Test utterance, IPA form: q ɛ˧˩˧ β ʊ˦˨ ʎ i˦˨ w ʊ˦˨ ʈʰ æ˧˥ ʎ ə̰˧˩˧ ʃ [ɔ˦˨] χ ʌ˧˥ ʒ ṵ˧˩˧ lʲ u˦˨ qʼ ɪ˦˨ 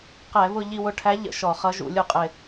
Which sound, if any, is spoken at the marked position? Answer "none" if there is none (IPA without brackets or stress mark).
ɔ˧˩˧